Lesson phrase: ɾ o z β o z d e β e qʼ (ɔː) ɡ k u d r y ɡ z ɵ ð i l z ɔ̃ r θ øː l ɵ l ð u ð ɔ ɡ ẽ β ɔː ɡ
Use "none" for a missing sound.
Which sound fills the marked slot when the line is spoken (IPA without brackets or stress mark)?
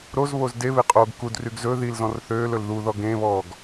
oː